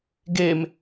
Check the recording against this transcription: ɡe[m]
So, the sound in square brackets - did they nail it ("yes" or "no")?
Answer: yes